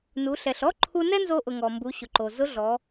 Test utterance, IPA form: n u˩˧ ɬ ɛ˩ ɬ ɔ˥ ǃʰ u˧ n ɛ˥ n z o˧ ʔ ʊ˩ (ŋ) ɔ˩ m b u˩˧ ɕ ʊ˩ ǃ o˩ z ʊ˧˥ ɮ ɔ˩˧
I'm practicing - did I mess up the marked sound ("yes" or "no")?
no